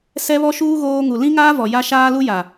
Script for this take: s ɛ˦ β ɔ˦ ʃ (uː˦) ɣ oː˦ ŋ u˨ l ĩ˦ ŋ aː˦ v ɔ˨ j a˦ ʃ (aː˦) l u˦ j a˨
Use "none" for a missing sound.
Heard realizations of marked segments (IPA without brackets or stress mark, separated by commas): uː˦, aː˦